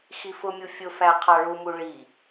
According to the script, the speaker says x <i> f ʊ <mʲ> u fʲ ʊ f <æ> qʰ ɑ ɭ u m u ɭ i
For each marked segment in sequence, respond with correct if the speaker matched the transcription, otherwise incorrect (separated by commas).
correct, correct, correct